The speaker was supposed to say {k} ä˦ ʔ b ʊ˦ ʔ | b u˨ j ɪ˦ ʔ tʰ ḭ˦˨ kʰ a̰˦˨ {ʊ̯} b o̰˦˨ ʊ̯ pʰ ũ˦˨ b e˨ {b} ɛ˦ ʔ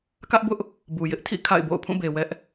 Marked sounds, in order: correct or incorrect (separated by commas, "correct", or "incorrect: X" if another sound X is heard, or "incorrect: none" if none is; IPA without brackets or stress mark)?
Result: correct, incorrect: ɪ̯, incorrect: w